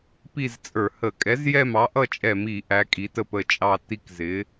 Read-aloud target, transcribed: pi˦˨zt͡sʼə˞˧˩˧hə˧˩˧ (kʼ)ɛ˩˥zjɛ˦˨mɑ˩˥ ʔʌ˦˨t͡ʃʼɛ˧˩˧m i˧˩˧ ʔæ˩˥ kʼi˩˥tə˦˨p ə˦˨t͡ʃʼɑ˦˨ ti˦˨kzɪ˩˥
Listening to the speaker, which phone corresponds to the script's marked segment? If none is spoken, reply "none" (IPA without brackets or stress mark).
kʼ